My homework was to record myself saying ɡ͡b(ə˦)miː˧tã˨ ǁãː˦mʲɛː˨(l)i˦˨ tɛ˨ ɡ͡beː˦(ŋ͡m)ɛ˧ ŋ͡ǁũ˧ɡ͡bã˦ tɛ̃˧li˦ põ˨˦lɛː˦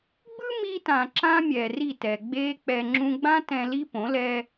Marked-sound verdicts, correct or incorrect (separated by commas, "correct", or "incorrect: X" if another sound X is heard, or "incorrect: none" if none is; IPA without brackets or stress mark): incorrect: ɯ˦, incorrect: r, incorrect: k͡p